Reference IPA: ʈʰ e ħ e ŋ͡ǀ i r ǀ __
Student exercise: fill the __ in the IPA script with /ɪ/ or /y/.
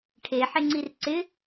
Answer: ɪ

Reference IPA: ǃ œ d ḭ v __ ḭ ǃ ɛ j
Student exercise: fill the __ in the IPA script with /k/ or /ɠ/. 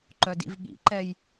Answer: ɠ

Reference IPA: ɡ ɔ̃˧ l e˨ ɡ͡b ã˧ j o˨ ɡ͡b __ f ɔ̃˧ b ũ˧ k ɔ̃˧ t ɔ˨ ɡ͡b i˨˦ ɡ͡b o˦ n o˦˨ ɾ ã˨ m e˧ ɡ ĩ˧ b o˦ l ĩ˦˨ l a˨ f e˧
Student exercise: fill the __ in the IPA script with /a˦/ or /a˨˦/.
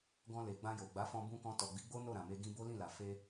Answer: a˨˦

